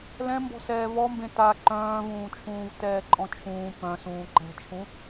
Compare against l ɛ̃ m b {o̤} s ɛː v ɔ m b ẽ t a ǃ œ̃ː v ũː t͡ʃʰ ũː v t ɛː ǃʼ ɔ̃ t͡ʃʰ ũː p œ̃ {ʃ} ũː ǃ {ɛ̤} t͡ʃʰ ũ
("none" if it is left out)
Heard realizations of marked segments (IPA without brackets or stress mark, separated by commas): ɔ̤, s, ɛ̤